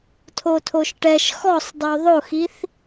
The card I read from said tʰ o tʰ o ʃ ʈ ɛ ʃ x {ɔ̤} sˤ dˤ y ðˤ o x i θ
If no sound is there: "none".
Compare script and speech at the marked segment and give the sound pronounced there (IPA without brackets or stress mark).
ɔ